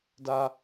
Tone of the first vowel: high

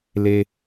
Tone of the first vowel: low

